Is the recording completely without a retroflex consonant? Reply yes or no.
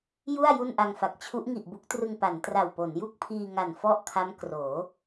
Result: yes